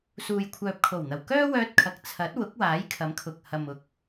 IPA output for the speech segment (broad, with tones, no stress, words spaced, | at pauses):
suː˨jkʷʰœː˨p̚kʰo˨˩wn̪ɐ˨˩w kœː˥wœː˧t̚kʰɐ˨k̚ t͡sʰɐ˨˥t̚ wʊ˨˥k̚waː˨˥jkʰɐ˨˥m kʰʊ˨k̚ hɐ˨m ʊ˨˥k̚